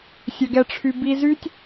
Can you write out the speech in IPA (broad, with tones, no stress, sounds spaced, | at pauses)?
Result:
sʲ œ˨ ɡ ɛ˨ ʈ͡ʂʰ y˨ b i˧ z y˦ tʲ